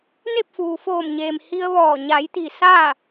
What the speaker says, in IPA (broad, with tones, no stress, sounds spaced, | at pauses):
n e˥˨ p̚ f uː˩ f oː˧˩ m ɲ eː˩ m h i˧ ə̯ ʋ ɔː˧˩ ɲ a˩˧ j t̪ i˩ s aː˥˨